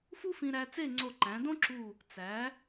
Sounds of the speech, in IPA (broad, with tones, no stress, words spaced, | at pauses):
fu˥fĩ˧ɾæ˧ t͡se˥˧ŋ͡ǀo˧˩ǃæ̃˩˧ dõ˥ǁu˧˩ | t͡sæ˩˧